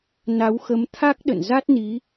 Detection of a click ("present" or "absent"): absent